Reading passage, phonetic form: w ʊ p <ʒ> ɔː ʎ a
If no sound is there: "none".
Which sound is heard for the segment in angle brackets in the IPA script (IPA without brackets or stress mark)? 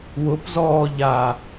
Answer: z